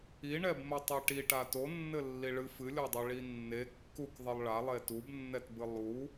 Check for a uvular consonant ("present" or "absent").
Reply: absent